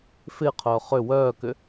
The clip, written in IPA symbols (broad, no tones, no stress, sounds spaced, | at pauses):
f ɪː qʰ œː χ ʏ w œː k ʏ